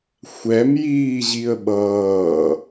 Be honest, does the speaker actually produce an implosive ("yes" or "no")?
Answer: yes